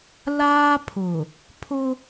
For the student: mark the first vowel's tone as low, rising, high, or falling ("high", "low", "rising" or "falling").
high